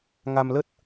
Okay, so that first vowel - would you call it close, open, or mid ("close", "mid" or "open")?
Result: open